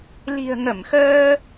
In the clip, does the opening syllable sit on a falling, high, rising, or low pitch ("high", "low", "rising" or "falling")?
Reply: low